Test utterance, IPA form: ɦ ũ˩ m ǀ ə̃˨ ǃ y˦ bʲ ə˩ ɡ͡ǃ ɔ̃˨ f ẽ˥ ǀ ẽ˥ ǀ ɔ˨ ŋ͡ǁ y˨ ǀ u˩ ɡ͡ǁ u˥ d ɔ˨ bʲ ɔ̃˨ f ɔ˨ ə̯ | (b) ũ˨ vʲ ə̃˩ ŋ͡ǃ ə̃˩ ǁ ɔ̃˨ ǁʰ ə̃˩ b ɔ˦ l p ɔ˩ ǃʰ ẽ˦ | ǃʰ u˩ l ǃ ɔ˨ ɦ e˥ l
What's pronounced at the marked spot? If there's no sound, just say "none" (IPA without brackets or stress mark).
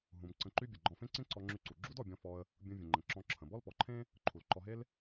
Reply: bʲ